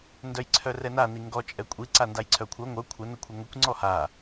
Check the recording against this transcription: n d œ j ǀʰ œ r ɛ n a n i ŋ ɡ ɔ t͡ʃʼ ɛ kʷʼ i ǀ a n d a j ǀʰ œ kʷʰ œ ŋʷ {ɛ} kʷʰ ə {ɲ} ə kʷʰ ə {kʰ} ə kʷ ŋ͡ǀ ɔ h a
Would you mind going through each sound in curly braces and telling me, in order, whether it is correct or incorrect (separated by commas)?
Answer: incorrect, incorrect, incorrect